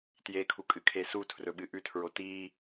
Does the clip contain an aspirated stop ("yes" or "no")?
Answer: yes